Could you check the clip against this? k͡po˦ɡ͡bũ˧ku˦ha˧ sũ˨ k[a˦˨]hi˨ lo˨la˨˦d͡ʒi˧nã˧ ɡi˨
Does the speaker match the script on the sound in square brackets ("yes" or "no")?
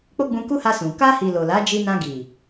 no